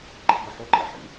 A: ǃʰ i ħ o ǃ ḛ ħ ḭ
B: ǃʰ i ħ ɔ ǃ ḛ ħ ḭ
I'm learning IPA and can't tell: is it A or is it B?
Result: A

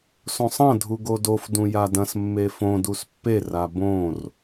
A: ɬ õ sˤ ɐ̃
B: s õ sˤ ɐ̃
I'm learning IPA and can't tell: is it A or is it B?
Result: B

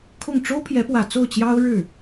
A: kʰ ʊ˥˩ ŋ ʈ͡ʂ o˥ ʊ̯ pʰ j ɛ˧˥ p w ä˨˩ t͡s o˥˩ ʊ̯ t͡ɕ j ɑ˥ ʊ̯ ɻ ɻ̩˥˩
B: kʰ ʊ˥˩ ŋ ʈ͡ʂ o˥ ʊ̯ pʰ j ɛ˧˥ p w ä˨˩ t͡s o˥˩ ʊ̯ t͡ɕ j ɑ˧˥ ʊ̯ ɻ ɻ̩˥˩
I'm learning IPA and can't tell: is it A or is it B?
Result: A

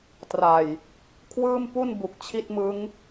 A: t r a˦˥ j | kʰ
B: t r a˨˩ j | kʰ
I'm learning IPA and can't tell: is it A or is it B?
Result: B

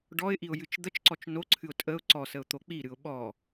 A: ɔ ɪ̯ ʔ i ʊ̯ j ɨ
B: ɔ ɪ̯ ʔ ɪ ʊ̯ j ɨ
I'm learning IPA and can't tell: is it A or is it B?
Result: A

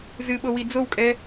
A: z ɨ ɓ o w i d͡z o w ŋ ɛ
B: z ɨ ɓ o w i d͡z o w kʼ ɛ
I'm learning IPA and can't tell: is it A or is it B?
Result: B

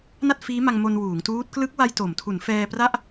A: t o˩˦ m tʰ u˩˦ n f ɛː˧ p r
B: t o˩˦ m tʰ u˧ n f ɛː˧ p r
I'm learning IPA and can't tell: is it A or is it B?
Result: A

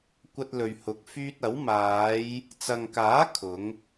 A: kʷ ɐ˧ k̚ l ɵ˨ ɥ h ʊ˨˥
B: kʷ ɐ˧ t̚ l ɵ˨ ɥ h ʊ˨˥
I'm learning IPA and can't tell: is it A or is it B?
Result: B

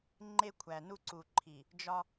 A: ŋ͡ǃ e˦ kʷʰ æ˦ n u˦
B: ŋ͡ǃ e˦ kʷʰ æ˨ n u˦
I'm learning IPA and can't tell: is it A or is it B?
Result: B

